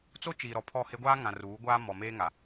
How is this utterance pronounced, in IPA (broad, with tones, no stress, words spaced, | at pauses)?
t͡so˦ t͡ʃiː˨ɾɔ˨ pʰɔ˦˨he˦ ɡʷaː˦ŋã˨ ruː˨˦ ɡʷaː˦ mɔ˨meː˦ŋa˨